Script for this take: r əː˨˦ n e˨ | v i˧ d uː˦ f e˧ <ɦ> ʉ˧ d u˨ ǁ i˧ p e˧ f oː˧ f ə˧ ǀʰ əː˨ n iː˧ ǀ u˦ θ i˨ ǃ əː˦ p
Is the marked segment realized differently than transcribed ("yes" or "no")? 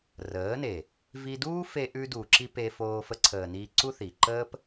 yes